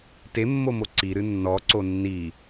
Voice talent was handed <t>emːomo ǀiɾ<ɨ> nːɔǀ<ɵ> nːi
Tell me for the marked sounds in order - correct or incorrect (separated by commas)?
correct, correct, incorrect